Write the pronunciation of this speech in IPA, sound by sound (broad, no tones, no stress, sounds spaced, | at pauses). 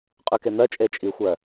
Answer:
qʼ ʉ k e n̪ ɜ t͡ʃʼ e t͡ʃʼ i xʷ ɜ